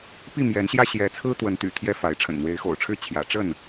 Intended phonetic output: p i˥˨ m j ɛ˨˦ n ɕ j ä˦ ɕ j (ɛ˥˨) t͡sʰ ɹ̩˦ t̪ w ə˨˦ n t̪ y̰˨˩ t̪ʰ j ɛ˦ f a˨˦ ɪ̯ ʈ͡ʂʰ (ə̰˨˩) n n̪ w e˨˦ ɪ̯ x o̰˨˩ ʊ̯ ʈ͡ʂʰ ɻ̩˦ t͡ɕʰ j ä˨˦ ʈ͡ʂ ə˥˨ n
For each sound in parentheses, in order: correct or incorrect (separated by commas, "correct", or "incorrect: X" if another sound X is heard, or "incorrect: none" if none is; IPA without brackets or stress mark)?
incorrect: ɛ˨˦, correct